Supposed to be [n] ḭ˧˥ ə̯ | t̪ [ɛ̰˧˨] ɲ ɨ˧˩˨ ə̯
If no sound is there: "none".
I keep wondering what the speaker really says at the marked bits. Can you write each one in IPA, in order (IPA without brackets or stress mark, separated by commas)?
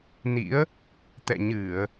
n, ɛ̰˧˨